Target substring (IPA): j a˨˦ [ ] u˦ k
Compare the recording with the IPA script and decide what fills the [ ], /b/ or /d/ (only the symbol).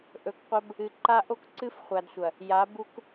b